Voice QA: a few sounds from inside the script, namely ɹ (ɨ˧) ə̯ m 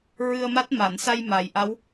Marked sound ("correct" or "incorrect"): correct